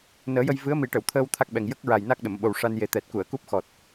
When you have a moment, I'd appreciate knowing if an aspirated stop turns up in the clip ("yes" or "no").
yes